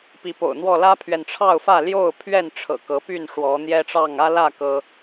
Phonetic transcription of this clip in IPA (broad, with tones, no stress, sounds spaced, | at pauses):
p i˨˦ p o̰˨˩ ʊ̯ n̪ w ɔ˥˨ l ä˦ pʰ ɥ ɛ˨ n ʈ͡ʂʰ ɑ˥˨ ʊ̯ f ä˥˨ l j o˥˨ ʊ̯ pʰ ɥ ɛ˥˨ n ʈ͡ʂʰ ɤ̰˨˩ k ɤ˨˦ p y˥˨ n ʂ w ɔ˨˦ n̪ j ɛ˦ ʈ͡ʂ ɑ˥˨ ŋ ä˦ l ä˥˨ k ɤ˦